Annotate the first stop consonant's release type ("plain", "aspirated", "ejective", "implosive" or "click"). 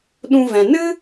implosive